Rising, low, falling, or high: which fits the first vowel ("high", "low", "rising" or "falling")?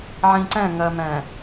low